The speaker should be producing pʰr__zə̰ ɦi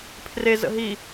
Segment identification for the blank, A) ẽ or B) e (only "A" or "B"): B